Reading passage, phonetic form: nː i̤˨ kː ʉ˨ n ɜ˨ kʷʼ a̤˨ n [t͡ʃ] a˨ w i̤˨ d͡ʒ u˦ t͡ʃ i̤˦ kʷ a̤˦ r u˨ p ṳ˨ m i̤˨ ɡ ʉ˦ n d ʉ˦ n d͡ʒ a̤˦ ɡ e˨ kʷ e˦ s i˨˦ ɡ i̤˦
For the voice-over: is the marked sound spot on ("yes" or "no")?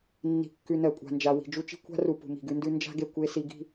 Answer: no